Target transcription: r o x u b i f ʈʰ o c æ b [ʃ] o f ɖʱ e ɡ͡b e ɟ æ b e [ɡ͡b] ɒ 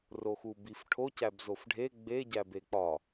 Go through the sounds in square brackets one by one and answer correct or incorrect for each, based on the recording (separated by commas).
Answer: incorrect, incorrect